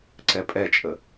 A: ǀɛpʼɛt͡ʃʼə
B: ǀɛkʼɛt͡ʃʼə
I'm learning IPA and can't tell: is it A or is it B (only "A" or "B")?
A